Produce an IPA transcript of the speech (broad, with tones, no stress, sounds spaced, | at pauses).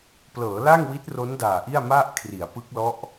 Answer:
p l ɤː˩˦ l a˥˩ ŋ w i˦˥ t̚ r o˦˥ n d aː˨˩ ʔ i˥˩ a̯ m a˥˩ ʔ kʰ r i˩˦ a̯ p ɯ˦˥ k̚ l ɔ˦˥ ʔ